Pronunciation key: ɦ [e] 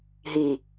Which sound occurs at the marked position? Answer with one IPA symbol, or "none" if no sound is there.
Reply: i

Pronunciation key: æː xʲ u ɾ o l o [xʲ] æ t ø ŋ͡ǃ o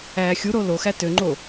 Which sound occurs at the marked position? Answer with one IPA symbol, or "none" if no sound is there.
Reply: x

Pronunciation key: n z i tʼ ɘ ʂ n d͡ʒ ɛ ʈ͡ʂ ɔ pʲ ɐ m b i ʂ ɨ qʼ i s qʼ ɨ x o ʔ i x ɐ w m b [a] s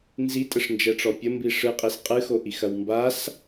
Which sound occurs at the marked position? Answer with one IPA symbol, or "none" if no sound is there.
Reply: a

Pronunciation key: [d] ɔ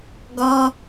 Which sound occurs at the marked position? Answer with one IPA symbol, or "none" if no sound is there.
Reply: ɡ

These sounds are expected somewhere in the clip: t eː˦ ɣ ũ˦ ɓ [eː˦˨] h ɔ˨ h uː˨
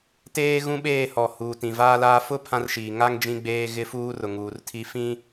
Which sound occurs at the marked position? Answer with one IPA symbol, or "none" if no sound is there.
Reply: eː˦˨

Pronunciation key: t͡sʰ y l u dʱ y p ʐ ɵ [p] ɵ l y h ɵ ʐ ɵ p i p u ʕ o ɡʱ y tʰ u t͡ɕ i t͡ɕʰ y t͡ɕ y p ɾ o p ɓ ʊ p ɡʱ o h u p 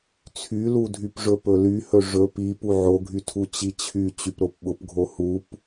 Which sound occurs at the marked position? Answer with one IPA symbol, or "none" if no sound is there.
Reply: p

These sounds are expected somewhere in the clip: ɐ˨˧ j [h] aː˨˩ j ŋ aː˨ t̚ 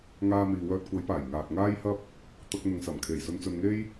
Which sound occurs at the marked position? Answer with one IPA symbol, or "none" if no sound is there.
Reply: p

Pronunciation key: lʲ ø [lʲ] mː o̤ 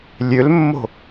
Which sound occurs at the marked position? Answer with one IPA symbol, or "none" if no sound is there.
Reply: l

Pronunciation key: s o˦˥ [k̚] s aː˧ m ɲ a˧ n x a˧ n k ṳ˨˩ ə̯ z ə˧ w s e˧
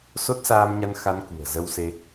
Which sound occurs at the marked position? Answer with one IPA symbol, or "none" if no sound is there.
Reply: t̚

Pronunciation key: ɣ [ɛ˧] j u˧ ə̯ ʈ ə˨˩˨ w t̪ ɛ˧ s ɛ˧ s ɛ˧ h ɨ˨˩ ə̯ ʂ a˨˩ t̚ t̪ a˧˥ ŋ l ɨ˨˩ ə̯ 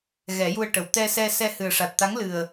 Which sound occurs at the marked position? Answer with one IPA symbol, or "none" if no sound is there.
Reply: ɛ˨˩˦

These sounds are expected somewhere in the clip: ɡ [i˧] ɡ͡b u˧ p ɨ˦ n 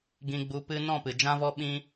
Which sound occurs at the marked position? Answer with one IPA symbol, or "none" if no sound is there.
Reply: ĩ˧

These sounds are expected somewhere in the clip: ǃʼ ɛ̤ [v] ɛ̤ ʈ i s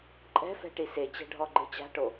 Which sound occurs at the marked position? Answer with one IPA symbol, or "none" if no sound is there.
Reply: f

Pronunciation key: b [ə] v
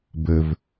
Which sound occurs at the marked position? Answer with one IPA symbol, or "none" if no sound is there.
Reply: ə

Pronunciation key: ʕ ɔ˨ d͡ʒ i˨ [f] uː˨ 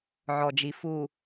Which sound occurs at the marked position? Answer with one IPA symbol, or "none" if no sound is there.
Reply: f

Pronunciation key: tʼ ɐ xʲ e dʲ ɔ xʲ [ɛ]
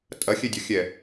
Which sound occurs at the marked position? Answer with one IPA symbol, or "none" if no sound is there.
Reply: ɛ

